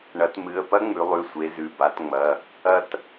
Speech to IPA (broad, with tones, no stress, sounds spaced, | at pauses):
ɳ ɐ˩˧ t m ɨ˩˧˩ ə̯ p ɐ˦˥ ŋ͡m ʉ˩˧ lˠ ʉ˩˧˩ sʷ e˩˧ z ʉ˩˧˩ b a˩˧ t ŋ͡m ɐ˩˧˩ | ɐ˧ t